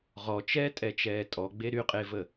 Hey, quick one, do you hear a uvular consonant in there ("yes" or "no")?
yes